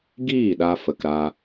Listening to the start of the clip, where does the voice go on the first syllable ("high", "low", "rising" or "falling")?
falling